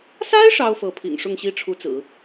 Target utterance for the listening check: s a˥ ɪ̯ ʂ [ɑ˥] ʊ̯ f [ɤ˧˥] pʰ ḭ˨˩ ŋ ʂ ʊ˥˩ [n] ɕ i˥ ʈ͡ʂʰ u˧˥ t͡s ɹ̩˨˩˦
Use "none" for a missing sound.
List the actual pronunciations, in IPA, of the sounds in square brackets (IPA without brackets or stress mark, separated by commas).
ɑ˥, ɤ˧˥, ŋ